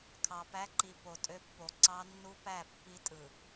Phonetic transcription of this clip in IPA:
kʰ ɑ˨ p æ˦ ǃ i˨ p o˨ tʼ ø˦ pː o˨ ǀ ɑ˦ nː u˦ p æ˦˨ pː i˦ tʼ ɯ˨

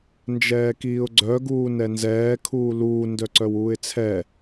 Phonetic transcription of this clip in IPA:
n d͡ʒ ɛː k iː ʊ̯ ɡ͡ǀ œ ɡ uː n ɛ n z ɛː kʰ uː l uː n d œ ǀ œ w uː ɪ̯ t͡sʰ ɛ

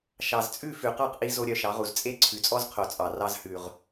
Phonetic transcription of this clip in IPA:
ʃ ɑ˨ z t͡sʼ ʉ˦˨ f ʉ˨ q ɑ˦˨ q ʔ i˧ z o˦ ɾʲ œ˧ ʃ ɑ˨˦ ʁ u˨ z t͡sʼ e˦ ǀʰ ʉ˨ t͡sʼ ɔ˦ z qʰ o˨ t͡sʼ ɑ˨ r ɑ˦ z h ʉ˨ ʁ

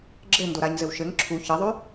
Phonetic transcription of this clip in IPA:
ɡ͡ǁ ɘ n d o ɾ a ɲ z ɘ w ʃ ɘ ŋ ǁʰ u ç ɘ ðˤ ʉ

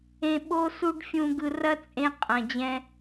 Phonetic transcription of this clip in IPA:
ẽ˨ ɓ o˦ s u˦ ɖ fʲ ũ˨ ɡ ɯ˨ r ɐ˦ t͡sʼ ẽ˦ qʼ ɐ̃˨ d͡ʑ ɛ̃˦

